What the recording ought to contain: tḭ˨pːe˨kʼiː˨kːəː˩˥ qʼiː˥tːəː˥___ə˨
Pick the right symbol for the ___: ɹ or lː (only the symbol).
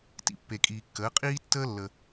lː